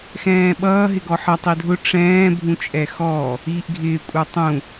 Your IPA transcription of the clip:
x ɛ̃ː ɓ ʌː ɦ ɪ ɡ ɔ ħ ʌ tˤ i dʱ ʊ ʈ͡ʂ ɛ̃ː bʱ ũ t͡ʃʼ ɛ x ɔ | iː ʔ ɡʱ ɪː kʷʼ ə˞ tˤ ũ

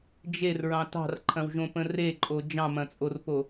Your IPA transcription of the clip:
d͡ʒ e r ɹ ɑ̃ t ɑ̤ r ǃʰ ɐ̃ w ʒ õ p ə̃ r e ǃʼ o d͡ʒ ɑ̃ m ɐ̃ t͡sʼ o r p o

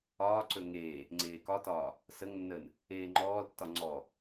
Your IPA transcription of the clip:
ɒː ǀ ɵ ŋ eː | ŋ͡ǀ eː k ɒ t ɒː | s ə ŋ nː əː n | eː ŋ͡ǃ ɔː l tː ɒ ŋ͡ǀ ɔ

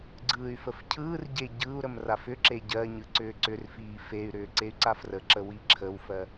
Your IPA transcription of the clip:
ɡ͡ǀ ɯː y̯ f ə f cʰ ɯː r ɟ e ɟ ɯ u̯ ɾ ə m r a f ʏ ǁ e ɟ ɜ ɲ ɯ ǀ ʏː ǀ ʏ r f iː f e y̯ ɾ ʏː ǀ e y̯ ǀ a f r ə ǁ ə w i ǁʰ ə w f ɜ

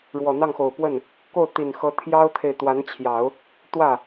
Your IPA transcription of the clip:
ɻ w ɔ˨˩ n̪ ɑ˥˩ ŋ x o˨˩ ʊ̯ p w ə˥˩ n | k o˥˩ ʊ̯ t̪ i˨˩ n x ɤ˧˥ t̪ʰ j ɑ˥ ʊ̯ t̪ʰ e˨ ɪ̯ t̪ w a˧˥ n t͡ɕʰ j ɑ˨˩˦ ʊ̯ | t̪ w ä˥˩

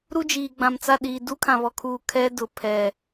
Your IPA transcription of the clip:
ɾ u˦ d͡ʒ iː˨ ɡ͡b ã˨ m t͡s a˦˨ ɗ iː˨ d u˦ kʰ ã˨ β ɔ˨ kʰ uː˨ kʰ ɛ˦ d ʊ˨ pʰ ɛ˨

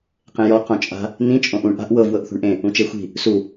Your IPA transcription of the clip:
q ẽ j ɔ q õ t͡ʃʼ a̤ | n ĩ t͡ʃʼ õ ʔ ũ ɳ ʔ a̤ ʔ w ɤ v w ɤ ʔ θ ṳ ɳ ʔ ẽ | ũ t͡ʃ e xʷ i̤ | s u

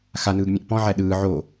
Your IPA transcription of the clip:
x a n ɯː ɡ mʲ ẽ ʔ p ɔ̃ ʕ æ ɗ ɯː ʕ o

